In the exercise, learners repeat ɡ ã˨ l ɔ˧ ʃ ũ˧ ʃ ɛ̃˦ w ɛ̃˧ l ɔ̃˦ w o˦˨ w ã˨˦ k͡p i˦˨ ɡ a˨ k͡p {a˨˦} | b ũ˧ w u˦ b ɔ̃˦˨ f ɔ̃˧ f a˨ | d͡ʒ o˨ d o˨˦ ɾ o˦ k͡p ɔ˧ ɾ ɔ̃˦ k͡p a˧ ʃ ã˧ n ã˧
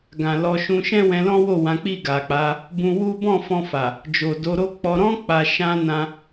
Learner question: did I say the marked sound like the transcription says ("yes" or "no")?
yes